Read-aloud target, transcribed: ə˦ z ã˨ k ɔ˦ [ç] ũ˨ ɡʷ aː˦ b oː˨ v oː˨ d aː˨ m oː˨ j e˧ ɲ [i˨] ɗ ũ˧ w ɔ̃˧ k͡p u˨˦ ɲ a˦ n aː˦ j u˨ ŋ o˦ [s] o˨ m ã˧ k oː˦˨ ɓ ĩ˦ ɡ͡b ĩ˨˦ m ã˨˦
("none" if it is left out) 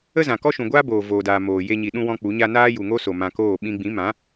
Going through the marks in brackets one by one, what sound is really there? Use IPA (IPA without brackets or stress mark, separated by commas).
ʃ, i˨, s